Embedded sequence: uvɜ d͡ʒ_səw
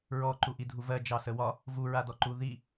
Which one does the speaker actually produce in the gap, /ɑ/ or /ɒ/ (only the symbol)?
ɑ